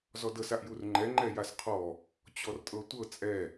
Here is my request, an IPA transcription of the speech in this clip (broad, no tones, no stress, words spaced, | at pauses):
zɔdɤs aʔjurŋ͡ǃɛ ŋ͡ǃɛjasqʰɔ | t͡ɕɔrtʼɤtʷɤ t͡sʼɛ